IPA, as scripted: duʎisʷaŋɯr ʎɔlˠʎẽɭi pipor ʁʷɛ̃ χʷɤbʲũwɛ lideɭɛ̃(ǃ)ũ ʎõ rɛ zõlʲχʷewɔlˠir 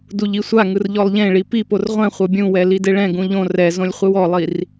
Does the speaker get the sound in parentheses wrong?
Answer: yes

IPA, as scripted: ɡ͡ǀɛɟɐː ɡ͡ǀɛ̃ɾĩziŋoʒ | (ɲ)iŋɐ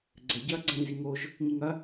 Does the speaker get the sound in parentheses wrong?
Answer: no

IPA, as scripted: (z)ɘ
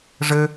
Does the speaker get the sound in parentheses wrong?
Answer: yes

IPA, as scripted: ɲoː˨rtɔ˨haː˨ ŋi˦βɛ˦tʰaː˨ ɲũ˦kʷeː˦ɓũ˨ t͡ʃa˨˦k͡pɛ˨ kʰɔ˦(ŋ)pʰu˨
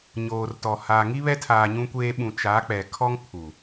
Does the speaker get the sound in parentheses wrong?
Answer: no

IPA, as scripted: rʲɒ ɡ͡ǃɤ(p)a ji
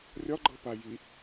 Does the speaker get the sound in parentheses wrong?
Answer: no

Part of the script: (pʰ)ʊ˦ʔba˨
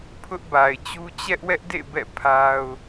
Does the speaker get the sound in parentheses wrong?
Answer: no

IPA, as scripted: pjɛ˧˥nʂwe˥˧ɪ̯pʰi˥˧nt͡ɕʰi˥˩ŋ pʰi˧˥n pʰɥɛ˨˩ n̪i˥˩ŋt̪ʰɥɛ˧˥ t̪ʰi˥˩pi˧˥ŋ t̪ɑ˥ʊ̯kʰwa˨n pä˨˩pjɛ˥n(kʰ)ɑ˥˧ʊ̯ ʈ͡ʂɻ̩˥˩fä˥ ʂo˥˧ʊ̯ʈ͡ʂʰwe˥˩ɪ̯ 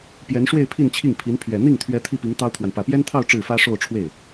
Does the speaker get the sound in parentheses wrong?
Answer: yes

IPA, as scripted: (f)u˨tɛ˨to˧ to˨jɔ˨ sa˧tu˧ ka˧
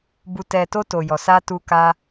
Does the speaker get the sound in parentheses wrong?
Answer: yes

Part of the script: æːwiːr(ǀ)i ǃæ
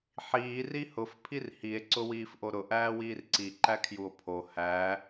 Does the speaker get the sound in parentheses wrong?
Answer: no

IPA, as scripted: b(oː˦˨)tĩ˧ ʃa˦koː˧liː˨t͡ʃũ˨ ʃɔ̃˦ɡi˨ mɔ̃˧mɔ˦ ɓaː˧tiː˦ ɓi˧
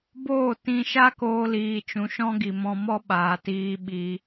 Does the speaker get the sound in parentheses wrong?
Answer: no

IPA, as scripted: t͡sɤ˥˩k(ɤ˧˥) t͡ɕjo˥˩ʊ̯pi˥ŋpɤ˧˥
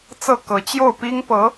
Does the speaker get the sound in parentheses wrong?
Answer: no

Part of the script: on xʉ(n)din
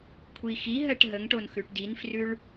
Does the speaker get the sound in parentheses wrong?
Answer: yes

